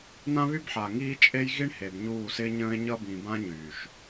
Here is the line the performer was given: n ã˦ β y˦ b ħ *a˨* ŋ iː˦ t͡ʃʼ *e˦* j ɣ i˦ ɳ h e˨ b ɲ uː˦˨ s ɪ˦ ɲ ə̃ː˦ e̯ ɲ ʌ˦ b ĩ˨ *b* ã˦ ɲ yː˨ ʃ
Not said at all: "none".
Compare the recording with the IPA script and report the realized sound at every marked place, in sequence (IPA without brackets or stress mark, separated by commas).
a˨, e˦, b